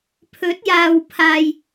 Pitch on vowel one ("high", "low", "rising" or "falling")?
rising